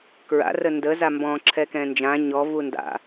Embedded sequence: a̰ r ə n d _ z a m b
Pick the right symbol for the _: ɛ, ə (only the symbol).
ə